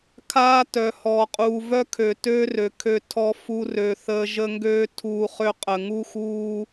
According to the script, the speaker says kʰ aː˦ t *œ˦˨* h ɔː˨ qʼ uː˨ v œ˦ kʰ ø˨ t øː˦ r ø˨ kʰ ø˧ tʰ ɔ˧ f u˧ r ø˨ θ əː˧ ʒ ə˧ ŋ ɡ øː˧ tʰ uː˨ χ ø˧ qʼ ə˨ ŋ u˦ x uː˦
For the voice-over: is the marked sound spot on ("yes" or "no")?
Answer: no